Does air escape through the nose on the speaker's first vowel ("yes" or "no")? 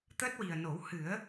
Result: no